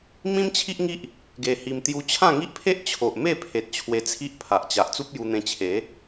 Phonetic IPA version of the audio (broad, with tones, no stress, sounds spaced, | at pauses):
m ĩ˦ m t͡ɕʰ i˦ ʔ ŋ i˦ ʔ | ɡ e˧ h i˧ m t̪ j u˧ t͡ɕʰ ã˥˧ ŋ i˦ ʔ pʰ e˦ ʔ t͡ɕʰ o˨ ʔ m e˥˧ pʰ e˨ t̚ t͡ɕʰ w e˧ t͡sʰ i˦ ʔ pʰ a˨ ʔ t͡ɕ a˨ ʔ t͡s u˦ p̚ j u˧ n̪ ẽ˧ t͡ɕʰ e˨˦